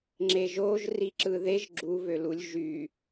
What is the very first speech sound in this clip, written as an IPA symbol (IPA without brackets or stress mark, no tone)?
ŋ͡ǁ